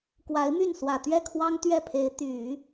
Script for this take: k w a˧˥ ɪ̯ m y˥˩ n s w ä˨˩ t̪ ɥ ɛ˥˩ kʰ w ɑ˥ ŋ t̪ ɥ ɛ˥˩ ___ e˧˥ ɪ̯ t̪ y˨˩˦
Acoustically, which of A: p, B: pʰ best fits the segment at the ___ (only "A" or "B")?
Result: B